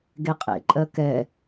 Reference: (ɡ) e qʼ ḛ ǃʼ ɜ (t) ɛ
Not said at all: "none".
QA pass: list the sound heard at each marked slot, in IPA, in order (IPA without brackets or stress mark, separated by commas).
ɡ, k